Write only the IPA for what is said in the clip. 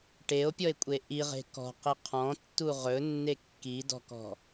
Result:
ʈ e o̯ pʲ ɔ e̯ kʷʼ e ʔ i ʁ e̤ k ɔ̤ q i qʰ ɔ̃ tː u ʁ ɵ nː e kː i d ɔ̤ k ɔ̤

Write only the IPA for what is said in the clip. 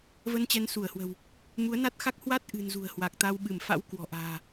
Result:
v ə˧ n t͡ɕ ɛ˨˦ n s u˧˩ ə̯ h w ə̤˨˩ w | m u˨˦ ə̯ n a˦˥ t̚ x a˦˥ k̚ h w a˦˥ t̚ ʔ ɨ̤˨˩ n z ṳ˨˩ ə̯ h w a˨˩ k̚ t̪ a˧ w ɓ ɨ˧˩ m f a̰˧˥ w k w ɔ̤˨˩ ʔ a̤ː˨˩

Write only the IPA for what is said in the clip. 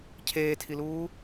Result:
cʰ eː tʰ i l uː

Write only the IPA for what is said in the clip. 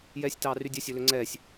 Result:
j ɛː sʲ t ɑː r y dʲ œ sʲ ɵ l ø ŋ͡ǀ ɛː sʲ

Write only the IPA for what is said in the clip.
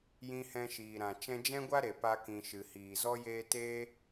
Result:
j ĩ˧ h ɛ̃˧ ʃ iː˨ ɾ ã˨ t͡ʃ ɛ̃˧ d͡ʒ ɛ̃˦ ɡʷ a˦ ɾ e˨ p a˧ k ĩ˨ ʃ ɨ˨ h iː˨ z ɔ˦ j eː˦ t e˦

